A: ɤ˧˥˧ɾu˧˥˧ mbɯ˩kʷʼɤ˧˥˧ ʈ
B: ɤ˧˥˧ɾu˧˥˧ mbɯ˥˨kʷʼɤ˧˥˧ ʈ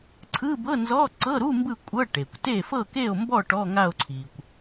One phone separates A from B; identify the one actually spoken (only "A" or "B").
B